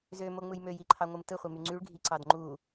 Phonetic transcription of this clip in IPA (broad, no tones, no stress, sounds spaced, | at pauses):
z ø m o ŋ͡m ɯ j m ø j i ǃʰ ɑ ŋʷ ɯ m t ɯ χʷ i m y ŋ͡ǀ y ɭ ɡʱ i ǀ ɑ d ŋ͡ǃ u